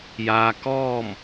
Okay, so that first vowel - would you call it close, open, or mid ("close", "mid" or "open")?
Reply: open